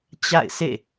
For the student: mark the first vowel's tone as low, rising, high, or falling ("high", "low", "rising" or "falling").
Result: falling